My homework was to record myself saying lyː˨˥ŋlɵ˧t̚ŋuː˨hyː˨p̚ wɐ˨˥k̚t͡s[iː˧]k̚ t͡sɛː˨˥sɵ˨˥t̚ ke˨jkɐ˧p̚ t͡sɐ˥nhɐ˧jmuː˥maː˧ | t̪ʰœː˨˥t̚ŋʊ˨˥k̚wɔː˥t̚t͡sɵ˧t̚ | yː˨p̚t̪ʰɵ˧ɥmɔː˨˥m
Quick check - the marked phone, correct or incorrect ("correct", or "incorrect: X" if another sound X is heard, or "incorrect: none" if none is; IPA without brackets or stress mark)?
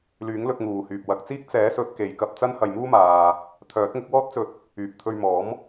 incorrect: iː˥